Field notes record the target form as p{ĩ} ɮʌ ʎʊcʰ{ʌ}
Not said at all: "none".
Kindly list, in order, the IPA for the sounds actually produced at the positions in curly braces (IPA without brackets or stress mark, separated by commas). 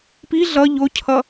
i, ʌ